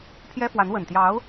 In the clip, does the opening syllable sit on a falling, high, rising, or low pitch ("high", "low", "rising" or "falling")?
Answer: high